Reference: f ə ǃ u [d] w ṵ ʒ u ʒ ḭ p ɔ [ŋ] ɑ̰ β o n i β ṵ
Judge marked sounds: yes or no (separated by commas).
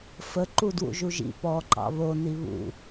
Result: yes, no